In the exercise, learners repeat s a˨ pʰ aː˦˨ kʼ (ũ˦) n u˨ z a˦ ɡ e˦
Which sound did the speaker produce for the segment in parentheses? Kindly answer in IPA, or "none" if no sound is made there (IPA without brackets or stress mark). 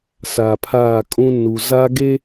ũ˦